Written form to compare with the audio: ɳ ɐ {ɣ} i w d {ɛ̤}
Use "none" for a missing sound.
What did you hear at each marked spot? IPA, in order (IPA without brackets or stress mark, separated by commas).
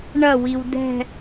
w, ɛ̤